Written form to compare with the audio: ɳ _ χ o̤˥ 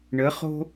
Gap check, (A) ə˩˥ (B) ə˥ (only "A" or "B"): A